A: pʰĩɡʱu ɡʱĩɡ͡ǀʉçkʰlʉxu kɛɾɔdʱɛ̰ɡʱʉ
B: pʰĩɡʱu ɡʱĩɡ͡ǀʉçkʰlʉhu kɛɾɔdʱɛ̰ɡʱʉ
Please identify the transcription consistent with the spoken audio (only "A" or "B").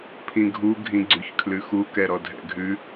A